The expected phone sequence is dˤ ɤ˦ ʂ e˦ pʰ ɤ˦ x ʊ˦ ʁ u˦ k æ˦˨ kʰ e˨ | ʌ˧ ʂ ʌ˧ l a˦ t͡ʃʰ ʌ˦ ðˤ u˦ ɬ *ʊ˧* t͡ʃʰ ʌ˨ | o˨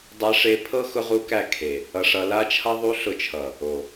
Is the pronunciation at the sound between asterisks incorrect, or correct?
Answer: correct